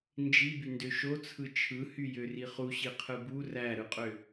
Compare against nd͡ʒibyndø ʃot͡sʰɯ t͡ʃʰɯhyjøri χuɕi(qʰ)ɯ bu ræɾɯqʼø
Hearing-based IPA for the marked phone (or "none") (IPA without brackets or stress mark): qʰ